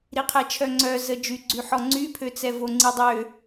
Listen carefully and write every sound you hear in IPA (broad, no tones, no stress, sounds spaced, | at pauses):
ɾ i qʰ ɛ t͡ʃʰ œ ŋ͡ǀ œ z ə d͡ʒ y ɡ͡ǀ y ħ ɔ ŋ͡ǀ y pʰ ø t͡s ɛ v o ŋ͡ǀ i dˤ ø